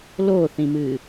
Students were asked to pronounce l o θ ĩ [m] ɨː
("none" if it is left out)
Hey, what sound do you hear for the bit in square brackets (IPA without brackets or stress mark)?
m